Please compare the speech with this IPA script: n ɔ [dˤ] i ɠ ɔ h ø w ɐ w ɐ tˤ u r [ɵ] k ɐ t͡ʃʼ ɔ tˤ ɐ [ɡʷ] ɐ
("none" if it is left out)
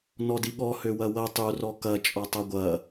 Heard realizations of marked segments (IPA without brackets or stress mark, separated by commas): d, ɔ, ɡʷ